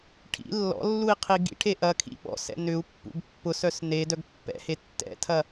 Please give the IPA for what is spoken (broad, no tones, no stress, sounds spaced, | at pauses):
ʈʰ ḭ lː ɔ̰ lː u i̯ qʰ i ɡ ḭ ʈʰ e ʔ ɐ kʰ ḭ ɓ ɔ̰ s ɛ̰ n ʏ u̯ pː ṵ ɡ pː ʊ s œ s n e d œ ɡ pː ɛ̰ h e tː ɛ̰ tʰ ɐ